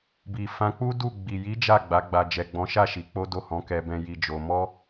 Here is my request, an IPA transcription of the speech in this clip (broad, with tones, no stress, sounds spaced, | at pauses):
b i˨ f ã˧ k͡p u˦ d u˦˨ ɡ͡b i˨ j i˨˦ d͡ʒ a˦˨ ɡ͡b a˨˦ ɡ͡b a˧ d͡ʒ ɛ˨ ɡ͡b ɔ̃˨˦ ʃ a˦˨ ʃ i˧ k͡p o˦ d o˦˨ h ɔ̃˨˦ k ɛ˧ b ɛ̃˧ j i˧ d͡ʒ o˧ m ɔ˦